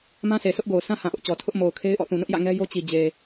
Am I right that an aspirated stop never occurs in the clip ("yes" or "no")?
no